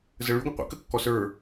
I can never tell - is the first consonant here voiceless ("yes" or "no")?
no